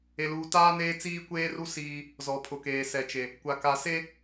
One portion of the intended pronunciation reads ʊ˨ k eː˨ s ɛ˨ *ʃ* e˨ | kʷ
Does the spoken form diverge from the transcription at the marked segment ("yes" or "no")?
yes